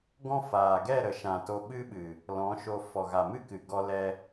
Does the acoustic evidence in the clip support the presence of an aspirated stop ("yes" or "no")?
no